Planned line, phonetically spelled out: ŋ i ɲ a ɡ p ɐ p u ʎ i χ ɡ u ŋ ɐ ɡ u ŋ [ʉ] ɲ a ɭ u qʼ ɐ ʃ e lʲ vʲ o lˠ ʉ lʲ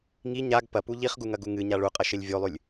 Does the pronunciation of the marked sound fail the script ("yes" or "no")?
yes